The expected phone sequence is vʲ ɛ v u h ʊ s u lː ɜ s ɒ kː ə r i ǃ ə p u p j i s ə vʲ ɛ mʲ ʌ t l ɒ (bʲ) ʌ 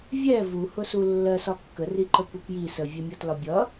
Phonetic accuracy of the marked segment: correct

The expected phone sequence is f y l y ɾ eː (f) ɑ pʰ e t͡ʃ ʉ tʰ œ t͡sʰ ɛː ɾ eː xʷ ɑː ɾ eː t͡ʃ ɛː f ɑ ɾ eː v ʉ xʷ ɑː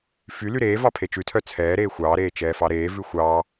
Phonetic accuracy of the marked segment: incorrect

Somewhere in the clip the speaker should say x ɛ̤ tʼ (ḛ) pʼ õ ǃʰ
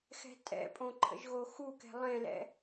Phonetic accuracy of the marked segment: incorrect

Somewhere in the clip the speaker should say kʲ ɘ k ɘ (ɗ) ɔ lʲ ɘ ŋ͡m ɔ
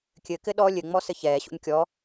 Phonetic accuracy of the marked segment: correct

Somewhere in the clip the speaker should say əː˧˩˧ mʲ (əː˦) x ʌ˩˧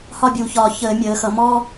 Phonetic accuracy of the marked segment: incorrect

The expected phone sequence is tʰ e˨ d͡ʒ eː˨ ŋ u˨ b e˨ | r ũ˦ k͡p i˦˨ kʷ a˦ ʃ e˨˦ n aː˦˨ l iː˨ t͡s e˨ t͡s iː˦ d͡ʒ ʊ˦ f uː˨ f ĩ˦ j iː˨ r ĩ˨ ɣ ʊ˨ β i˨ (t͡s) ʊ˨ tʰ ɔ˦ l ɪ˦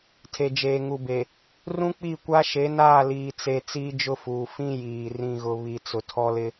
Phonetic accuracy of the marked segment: correct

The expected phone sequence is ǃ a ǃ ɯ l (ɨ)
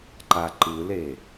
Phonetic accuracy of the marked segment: incorrect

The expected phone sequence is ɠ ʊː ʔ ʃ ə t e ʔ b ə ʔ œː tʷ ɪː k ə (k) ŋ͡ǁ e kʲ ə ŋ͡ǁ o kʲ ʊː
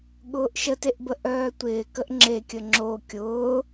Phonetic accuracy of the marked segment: incorrect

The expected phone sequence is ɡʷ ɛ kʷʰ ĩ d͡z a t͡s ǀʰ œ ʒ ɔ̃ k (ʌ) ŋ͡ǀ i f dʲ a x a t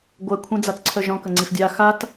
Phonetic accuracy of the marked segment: incorrect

